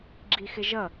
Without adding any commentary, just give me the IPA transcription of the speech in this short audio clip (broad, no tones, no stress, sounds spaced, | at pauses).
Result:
ɡ͡ǁ i x ɪ ʒ ʌ